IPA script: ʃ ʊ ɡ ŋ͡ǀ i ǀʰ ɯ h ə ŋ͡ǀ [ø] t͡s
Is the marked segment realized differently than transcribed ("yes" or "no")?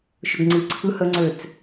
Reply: no